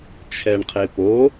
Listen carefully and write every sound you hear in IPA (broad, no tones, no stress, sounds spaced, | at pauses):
t͡ʃʰ ɛ ɳ qʰ e p o